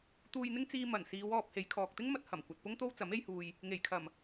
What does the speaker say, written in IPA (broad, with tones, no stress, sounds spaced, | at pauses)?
t̪ uː˧ j n̪ ɪ˥ ŋ t͡s iː˧ m ɐ˨˩ n s iː˨˧ w ɔː˧ p̚ h e˨˧ j kʰ ɔː˨ k̚ t̪ ɪ˥ ŋ m ɐ˧ t̚ h ɐ˨˩ m kʷ ɐ˨ t̚ p ʊ˥ ŋ t̪ o˥ w t͡s ɐ˨˥ m e˧ j h uː˨ j | ŋ e˨˩ j kʰ ɐ˨˩ m